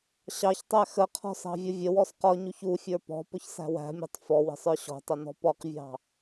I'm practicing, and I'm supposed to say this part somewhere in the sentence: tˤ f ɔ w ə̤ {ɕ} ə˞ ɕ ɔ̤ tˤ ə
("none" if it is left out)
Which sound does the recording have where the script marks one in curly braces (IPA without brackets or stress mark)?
sˤ